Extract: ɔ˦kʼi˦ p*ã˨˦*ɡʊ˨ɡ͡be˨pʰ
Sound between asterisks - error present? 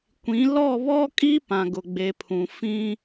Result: yes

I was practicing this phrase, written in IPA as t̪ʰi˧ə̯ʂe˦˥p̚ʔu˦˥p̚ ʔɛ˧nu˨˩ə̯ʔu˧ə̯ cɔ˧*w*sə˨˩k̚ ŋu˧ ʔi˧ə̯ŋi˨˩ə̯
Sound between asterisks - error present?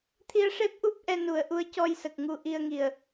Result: yes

